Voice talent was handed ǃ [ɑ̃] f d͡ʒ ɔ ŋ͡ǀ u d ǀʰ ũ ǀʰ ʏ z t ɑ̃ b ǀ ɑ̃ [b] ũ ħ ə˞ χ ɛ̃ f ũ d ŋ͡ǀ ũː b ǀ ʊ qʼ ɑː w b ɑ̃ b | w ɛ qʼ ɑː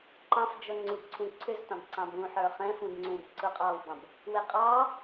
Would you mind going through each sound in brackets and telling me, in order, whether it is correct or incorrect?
correct, correct

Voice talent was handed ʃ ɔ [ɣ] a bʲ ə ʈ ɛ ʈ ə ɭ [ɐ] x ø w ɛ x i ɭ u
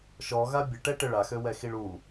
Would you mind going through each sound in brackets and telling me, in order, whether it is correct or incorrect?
correct, incorrect: a

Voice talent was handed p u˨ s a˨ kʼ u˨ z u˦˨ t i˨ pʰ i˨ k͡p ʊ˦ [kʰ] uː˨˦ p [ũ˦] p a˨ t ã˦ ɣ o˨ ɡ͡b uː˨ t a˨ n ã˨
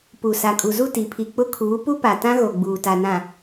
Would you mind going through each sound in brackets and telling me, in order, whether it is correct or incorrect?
correct, incorrect: u˦

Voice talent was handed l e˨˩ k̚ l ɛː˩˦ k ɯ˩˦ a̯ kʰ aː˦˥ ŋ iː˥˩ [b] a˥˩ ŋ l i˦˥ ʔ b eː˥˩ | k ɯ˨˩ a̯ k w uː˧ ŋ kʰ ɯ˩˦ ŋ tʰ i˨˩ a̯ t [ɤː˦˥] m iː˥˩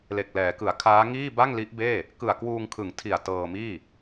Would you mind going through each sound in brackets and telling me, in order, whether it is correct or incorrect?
correct, incorrect: ɤː˧

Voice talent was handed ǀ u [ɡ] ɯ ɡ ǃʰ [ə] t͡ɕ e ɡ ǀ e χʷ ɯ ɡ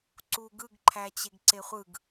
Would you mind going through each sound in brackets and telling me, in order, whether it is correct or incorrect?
correct, incorrect: æ

